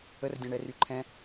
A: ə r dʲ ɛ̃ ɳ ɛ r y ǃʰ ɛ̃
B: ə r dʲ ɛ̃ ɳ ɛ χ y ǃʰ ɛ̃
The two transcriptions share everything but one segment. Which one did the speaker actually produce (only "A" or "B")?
A